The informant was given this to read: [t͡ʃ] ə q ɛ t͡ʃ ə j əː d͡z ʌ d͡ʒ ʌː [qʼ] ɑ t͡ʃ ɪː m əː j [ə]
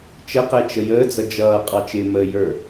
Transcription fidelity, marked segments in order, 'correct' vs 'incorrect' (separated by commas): correct, correct, incorrect